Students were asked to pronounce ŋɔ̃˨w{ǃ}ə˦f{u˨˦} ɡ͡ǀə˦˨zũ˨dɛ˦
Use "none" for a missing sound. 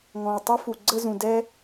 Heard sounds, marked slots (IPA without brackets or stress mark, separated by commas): tˤ, u˨